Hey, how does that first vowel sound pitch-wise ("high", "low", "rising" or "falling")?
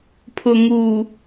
low